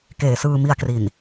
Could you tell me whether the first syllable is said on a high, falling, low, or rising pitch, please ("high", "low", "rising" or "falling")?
low